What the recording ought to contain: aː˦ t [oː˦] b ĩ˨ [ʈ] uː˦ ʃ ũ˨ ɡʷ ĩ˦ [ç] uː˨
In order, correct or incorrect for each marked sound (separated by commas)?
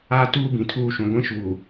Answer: incorrect, incorrect, incorrect